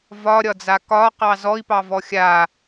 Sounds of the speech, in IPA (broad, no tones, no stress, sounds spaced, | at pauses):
v ɒ ɾʲ ɒ d͡z a k ɒ q ɑ z ɔ i̯ p ɑ v ɔ xʲ a